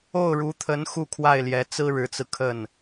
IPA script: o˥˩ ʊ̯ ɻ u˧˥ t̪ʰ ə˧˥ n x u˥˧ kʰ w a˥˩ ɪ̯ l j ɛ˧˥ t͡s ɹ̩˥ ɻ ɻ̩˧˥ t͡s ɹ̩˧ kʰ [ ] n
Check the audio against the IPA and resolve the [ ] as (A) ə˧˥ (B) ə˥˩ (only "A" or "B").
B